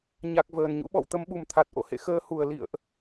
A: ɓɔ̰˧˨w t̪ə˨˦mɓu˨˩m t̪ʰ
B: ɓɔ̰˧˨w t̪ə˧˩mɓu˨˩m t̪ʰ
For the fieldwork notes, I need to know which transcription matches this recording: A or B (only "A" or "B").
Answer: A